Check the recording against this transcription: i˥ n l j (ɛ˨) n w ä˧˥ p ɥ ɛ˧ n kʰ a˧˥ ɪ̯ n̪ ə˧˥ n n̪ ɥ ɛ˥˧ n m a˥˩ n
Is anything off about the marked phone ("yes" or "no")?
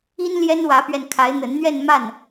yes